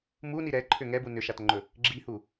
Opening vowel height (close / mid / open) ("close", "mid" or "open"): close